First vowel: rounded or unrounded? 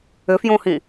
rounded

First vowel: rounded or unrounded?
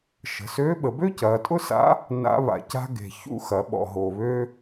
unrounded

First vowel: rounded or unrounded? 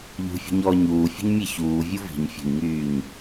rounded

